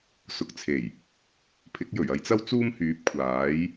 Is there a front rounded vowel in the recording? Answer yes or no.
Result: yes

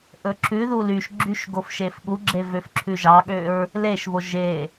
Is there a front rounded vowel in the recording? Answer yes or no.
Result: yes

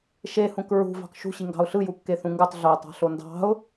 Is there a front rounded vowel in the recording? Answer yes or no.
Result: no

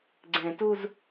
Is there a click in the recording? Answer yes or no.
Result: yes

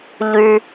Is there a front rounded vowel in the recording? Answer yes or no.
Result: yes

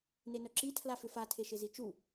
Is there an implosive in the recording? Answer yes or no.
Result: no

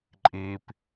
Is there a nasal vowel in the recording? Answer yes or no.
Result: no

